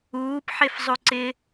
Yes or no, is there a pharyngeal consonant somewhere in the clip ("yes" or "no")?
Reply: yes